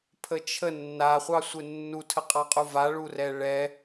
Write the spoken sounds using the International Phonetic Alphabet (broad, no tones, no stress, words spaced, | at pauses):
pʰət͡ʃʰə nːaχʷɑsʷɪ nːutʰəqʼɑqʼu vaɭurɛ ɭɛ